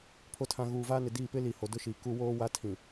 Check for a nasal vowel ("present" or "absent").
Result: present